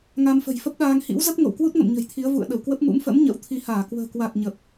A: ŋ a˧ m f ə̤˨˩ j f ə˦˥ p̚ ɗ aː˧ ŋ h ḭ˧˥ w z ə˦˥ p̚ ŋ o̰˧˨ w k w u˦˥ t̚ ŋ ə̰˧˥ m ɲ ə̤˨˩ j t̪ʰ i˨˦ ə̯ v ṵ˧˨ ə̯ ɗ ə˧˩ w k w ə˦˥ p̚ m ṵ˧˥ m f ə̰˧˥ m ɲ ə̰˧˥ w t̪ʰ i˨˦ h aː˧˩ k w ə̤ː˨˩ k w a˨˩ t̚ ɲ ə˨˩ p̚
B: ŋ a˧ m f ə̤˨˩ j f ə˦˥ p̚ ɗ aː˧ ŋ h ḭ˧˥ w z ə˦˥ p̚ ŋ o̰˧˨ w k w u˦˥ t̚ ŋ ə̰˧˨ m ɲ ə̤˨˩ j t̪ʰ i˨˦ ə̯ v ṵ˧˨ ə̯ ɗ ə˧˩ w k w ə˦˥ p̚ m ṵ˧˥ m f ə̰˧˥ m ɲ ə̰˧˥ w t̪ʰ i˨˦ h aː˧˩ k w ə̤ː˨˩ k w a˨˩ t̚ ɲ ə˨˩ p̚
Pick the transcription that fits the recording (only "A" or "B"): B